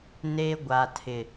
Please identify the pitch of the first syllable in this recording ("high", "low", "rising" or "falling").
high